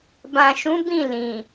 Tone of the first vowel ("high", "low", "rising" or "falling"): low